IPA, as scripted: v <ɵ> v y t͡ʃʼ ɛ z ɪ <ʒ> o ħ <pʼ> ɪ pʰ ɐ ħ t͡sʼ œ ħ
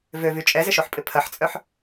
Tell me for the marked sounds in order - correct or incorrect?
incorrect: ø, incorrect: ʃ, correct

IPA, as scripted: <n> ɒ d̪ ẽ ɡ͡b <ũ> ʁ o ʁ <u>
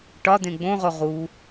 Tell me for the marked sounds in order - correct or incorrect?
incorrect: ʈ, incorrect: õ, incorrect: uː

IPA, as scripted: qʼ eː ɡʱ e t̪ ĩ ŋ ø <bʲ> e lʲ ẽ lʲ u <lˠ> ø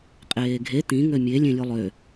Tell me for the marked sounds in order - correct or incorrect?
incorrect: mʲ, correct

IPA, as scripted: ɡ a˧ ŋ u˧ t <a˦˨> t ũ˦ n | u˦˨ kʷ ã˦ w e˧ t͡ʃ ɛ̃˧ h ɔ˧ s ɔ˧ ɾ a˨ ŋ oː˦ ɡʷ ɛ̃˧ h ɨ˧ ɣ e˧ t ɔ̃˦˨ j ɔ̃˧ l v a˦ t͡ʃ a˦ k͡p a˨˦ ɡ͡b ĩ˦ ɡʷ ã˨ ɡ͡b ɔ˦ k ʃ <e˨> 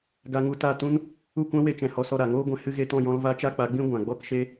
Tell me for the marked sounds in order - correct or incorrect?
correct, incorrect: e˦

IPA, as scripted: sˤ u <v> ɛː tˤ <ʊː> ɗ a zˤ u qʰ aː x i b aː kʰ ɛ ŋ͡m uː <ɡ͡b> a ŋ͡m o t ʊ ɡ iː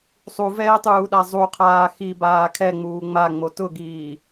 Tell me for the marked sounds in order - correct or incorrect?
correct, incorrect: uː, incorrect: ŋ͡m

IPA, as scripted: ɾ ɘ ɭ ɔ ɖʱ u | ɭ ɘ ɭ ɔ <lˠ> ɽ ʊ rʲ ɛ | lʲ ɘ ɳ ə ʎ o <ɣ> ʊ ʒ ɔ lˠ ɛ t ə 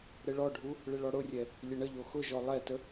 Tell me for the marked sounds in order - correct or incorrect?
incorrect: none, incorrect: x

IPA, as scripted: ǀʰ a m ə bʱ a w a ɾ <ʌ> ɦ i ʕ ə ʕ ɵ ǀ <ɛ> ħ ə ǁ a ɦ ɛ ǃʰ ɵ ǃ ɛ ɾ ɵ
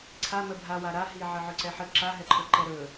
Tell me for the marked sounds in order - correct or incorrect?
incorrect: a, correct

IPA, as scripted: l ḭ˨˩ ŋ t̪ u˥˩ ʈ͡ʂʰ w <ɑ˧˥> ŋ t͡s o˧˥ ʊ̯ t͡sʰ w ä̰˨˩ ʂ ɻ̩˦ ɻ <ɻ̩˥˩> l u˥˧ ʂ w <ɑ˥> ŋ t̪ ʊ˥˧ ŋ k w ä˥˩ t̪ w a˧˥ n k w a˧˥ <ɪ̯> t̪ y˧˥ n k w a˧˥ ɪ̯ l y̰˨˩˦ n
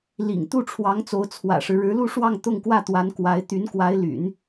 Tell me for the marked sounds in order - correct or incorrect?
correct, incorrect: ɻ̩˧˥, incorrect: ɑ˥˧, correct

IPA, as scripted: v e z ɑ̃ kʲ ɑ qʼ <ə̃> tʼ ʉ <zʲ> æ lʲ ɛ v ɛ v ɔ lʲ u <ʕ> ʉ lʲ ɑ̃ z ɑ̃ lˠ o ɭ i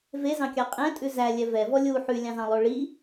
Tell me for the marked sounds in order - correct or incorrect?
incorrect: ɛ̃, incorrect: z, incorrect: ħ

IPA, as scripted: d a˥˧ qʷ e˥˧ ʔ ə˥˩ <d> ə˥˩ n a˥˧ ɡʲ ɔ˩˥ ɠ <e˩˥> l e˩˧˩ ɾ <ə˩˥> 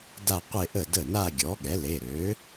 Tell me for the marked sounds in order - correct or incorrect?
correct, incorrect: ɛ˩˥, incorrect: ø˩˥

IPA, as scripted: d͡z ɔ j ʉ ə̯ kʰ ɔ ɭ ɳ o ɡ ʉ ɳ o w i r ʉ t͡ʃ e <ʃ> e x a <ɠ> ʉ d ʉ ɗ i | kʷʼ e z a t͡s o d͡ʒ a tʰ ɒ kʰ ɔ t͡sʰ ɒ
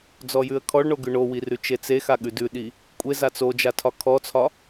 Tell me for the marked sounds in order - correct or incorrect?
incorrect: t͡s, correct

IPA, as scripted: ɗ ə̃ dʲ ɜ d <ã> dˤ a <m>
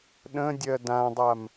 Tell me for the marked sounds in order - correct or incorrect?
correct, correct

